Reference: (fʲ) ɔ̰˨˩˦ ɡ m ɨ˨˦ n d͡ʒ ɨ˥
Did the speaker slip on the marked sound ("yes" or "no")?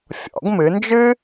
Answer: no